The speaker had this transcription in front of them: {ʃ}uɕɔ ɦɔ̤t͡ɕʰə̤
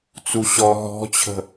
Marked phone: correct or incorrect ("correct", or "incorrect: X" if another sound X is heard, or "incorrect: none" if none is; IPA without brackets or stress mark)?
incorrect: t͡s